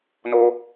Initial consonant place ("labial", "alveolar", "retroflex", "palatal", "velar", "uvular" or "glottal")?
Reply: alveolar